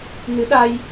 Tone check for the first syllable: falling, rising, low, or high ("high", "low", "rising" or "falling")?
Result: rising